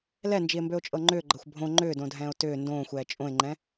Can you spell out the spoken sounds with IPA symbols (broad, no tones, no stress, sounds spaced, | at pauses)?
l ɛ n d͡ʒ i e̯ m b ø o̯ t͡ʃʼ ɤ ŋ͡ǃ ʏː ɡ͡ǃ ɤ xʷ bʱ õ ŋ͡ǃ ʏː d õ dʱ ɛ̃ː o̯ t ʏː n d õː xʷ ɛː t͡ʃʼ õ e̯ ŋ͡ǃ ɛ̃